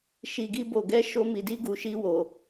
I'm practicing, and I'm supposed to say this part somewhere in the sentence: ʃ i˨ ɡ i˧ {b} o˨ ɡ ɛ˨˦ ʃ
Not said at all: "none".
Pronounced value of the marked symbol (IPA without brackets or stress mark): b